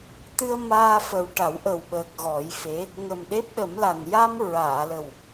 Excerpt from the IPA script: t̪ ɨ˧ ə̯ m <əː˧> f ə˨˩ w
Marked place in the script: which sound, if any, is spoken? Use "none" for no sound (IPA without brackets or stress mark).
aː˧